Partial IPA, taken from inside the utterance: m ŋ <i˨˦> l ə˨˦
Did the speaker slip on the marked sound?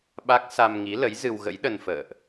no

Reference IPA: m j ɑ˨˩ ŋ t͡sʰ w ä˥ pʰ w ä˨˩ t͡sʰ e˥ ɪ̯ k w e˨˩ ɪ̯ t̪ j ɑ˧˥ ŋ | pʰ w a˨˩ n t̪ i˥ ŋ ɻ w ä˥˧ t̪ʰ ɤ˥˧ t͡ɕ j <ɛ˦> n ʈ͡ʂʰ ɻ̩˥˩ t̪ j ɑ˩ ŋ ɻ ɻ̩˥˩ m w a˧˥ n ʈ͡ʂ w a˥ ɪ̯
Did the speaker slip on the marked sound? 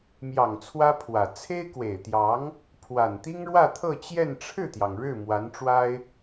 yes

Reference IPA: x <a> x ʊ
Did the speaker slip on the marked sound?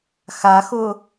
no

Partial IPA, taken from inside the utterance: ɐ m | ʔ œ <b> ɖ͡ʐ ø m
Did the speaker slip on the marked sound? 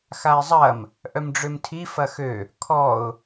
yes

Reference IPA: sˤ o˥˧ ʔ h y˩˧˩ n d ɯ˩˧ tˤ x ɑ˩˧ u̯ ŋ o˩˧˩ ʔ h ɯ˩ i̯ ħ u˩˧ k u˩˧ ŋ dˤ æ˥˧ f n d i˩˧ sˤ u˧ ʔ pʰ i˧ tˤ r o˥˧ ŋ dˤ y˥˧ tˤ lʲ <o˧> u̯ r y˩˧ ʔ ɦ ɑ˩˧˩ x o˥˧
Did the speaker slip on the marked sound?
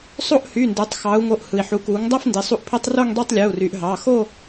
yes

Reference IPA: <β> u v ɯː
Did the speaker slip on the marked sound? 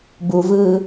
yes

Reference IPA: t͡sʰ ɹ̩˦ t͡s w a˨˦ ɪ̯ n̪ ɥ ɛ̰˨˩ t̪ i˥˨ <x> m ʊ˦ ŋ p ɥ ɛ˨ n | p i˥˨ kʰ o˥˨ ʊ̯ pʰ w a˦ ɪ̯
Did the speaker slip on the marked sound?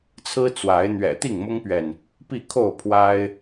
yes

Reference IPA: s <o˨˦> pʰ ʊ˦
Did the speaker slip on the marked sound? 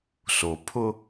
yes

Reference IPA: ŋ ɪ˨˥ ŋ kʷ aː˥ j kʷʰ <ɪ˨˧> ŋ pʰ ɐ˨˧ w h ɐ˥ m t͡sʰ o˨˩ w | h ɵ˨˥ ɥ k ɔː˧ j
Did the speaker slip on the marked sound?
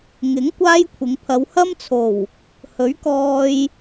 no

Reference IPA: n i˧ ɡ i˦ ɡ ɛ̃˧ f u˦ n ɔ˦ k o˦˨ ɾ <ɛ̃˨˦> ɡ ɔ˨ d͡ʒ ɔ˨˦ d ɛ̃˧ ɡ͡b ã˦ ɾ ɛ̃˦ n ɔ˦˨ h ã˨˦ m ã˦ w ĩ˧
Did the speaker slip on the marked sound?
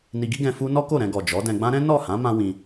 yes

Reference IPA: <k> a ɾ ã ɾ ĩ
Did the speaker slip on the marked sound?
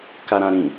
no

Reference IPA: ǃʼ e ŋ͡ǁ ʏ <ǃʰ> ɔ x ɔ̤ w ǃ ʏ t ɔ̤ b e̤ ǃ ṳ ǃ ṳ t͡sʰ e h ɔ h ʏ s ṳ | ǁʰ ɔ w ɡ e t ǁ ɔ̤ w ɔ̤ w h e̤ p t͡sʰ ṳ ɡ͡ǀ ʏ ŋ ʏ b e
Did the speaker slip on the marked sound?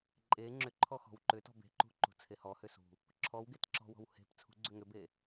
no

